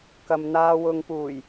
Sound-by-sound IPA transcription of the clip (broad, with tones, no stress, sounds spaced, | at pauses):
k ɐ˨ m n̪ aː˧ w ʊ˨ ŋ p uː˨˩ j